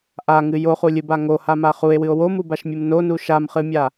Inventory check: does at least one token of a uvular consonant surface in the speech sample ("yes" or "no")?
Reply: yes